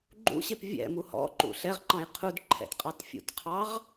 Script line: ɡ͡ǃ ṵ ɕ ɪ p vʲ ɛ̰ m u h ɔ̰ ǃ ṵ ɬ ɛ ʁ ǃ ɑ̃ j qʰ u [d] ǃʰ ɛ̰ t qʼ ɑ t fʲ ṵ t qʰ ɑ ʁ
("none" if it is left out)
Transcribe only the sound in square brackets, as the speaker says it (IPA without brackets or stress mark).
d